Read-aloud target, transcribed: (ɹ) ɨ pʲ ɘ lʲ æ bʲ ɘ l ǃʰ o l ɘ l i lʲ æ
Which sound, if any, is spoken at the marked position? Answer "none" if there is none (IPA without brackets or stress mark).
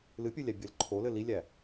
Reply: l